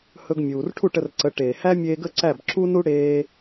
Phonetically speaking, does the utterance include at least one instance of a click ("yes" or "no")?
yes